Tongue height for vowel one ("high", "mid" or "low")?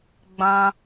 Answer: low